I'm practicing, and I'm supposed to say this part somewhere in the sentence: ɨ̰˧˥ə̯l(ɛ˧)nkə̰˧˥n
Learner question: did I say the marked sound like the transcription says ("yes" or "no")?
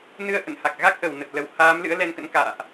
yes